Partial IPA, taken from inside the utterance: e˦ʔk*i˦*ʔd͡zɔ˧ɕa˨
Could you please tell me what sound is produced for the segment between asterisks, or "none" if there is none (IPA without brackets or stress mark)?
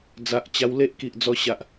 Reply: i˨